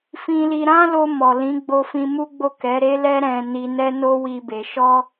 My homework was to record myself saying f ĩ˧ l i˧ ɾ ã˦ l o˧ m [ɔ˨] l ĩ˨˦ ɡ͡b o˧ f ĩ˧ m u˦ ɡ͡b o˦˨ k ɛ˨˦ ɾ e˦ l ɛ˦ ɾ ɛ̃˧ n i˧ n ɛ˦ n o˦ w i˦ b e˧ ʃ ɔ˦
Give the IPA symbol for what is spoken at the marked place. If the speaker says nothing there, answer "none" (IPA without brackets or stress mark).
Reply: ɔ˨